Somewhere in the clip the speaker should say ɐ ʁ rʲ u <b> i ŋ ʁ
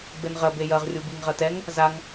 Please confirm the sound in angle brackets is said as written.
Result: yes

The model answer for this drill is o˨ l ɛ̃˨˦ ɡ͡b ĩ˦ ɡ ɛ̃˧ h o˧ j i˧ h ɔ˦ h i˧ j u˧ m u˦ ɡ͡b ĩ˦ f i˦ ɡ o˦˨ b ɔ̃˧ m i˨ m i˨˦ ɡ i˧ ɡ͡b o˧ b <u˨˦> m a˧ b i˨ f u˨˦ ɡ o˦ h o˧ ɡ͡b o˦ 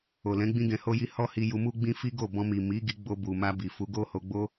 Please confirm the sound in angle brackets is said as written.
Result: no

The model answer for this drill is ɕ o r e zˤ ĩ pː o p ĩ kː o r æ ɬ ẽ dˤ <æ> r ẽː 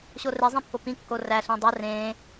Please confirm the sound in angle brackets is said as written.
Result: yes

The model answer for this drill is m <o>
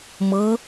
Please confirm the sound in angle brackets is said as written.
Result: no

